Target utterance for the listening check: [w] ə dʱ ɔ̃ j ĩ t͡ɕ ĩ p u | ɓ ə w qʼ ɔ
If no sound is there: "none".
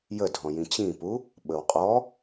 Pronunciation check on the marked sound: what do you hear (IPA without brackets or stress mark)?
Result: j